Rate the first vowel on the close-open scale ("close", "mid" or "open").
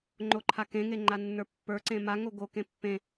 mid